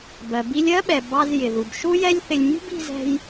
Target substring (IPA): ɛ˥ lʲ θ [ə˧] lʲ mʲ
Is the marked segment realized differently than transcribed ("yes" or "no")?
yes